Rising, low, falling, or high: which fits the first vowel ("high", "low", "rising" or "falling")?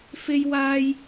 high